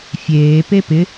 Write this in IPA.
fʲ eː p e p ɪ

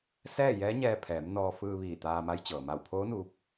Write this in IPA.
s ɛː˥˨ j ɛː˧˥ ɲ ɛː˧ pʰ ɛː˩˧ m n ɔː˧ f ɯː˧ ʋ iː˧˩ t̪ aː˧ m a˧˥ j t͡ɕ ɤː˩ m a˧˩ w pʰ oː˧˥ n uː˧ p̚

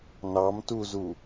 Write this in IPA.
n ɑ m t u z u

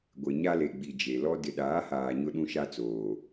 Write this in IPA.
ɡʷ e˨ ɲ a˦ l e˨ ɡ͡b i˨ d͡ʒ e˨ l ɔ˦ d ɪ˨ ɗ aː˨˦ h aː˨ ɲ ʊ˦ ɗ ũ˦ ʃ a˦ t͡s oː˨

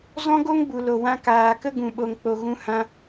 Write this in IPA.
z ɔ̃˦ ɡ o˦ ŋ b u˨ l o˨ w ã˧ k aː˨ k ə˦ ɡ ũ˨ ɓ o˨ ŋ k͡p o˨ ɣ ũ˧ h ã˧

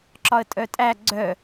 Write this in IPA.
ǁ ɒ ə̯ tʼ œ tʼ æ ɡ͡ǀ œ

